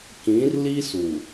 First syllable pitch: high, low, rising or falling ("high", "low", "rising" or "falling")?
rising